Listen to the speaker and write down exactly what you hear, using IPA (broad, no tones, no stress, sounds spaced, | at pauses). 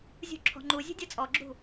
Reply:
zʲ ṳ ǁʰ ɔ̤ ŋ͡ǃ u zʲ ṳ dʲ ʌ t͡sʼ ɔ ɡ͡ǁ ṳ